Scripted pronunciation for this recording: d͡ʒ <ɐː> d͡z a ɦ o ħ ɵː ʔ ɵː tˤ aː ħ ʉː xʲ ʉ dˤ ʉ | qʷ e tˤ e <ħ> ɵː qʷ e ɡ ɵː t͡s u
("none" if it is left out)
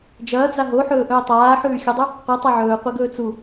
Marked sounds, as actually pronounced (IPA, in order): ɐː, ʕ

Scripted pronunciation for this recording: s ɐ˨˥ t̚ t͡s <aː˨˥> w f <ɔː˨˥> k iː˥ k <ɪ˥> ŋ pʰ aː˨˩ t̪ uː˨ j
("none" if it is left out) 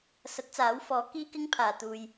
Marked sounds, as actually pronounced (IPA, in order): aː˨˥, ɔː˨˥, ɪ˥

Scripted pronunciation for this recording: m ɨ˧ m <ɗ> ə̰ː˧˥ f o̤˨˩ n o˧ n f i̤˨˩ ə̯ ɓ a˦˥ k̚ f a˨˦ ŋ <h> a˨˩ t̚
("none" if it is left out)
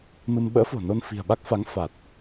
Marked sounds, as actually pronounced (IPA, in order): ɓ, f

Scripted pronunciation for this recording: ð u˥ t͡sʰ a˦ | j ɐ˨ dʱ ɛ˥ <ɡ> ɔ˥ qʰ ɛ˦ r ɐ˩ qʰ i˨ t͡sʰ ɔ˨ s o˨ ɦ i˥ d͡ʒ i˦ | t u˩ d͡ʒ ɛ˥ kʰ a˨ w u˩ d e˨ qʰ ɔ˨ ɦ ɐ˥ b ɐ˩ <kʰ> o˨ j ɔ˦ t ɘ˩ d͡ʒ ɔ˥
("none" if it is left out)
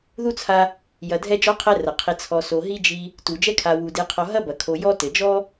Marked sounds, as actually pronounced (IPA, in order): d͡ʒ, kʰ

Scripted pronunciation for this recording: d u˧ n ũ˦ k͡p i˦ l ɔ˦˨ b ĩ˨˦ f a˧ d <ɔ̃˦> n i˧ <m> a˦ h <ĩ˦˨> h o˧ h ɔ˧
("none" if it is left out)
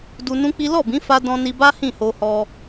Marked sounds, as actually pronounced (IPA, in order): ɔ̃˧, b, ĩ˦˨

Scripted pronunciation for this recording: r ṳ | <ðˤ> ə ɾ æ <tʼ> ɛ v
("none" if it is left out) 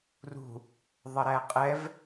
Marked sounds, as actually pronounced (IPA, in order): ðˤ, qʼ

